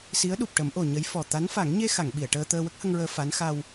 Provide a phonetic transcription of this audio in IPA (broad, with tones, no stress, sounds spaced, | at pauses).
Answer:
s i˧˥ ə̯ ɗ u˨˩ p̚ ʈ ə˨˩˦ m ʔ o˨˩ ɲ ə˧˥ j f ɔ˨˩ t̪ a˧˥ n f a˨˩˦ ŋ ɲ e˧ x a˨˩˨ ŋ ɓ i˨˩˨ ə̯ ʈ əː˧ t̪ əː˧ w ə˦˥ k̚ h ə˧ ŋ ɹ əː˧ f a˧˥ n x a˧ w